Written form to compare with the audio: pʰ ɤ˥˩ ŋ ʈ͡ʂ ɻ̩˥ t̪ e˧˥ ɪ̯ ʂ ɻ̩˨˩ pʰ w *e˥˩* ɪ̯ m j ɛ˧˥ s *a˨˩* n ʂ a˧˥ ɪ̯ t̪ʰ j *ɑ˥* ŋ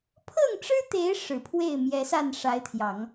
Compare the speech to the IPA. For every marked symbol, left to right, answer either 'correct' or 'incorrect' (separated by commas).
correct, incorrect, incorrect